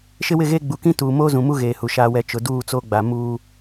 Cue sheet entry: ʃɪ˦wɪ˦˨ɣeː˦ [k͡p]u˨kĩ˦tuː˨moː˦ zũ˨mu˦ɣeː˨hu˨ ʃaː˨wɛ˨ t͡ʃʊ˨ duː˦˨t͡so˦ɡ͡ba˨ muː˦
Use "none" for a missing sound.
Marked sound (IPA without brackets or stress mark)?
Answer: ɡ͡b